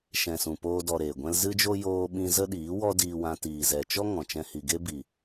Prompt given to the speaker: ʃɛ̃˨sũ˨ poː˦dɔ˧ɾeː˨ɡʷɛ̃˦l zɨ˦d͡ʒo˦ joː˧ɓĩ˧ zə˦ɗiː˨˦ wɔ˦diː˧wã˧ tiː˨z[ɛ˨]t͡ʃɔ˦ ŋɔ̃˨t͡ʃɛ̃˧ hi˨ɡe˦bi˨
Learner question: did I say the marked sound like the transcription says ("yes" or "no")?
yes